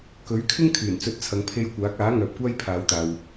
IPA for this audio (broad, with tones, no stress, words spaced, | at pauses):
kɵ˨˥ɥkʰɪ˥ŋ kʰyː˨˩nt͡sɵ˧t̚t͡sʰɐ˨ŋ pʰe˧j kʷaː˨˥k̚aː˨˥ ŋœː˨p̚kʷaː˥jpʰaː˨˧wt̪aː˨w